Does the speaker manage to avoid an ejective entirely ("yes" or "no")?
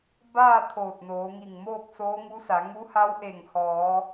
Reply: yes